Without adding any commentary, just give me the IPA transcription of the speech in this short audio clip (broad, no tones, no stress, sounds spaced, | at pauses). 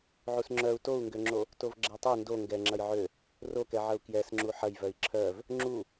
ʕ u s ŋ͡ǁ œ u̯ t o u̯ ŋ ɡ ø ŋ͡ǁ o | t o v ɡ͡ǁ ɛ tˤ ø n d o ŋ ɡ ɛ ŋ͡ǁ ɐ j ʕ ø | r o k ɛ ʕ ɐ u̯ k j ɛ s ŋ͡ǁ u ħ ɐ j v œ i̯ ǁʰ œ v | ŋ͡ǁ u